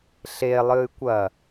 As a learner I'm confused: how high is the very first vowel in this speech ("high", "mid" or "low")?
mid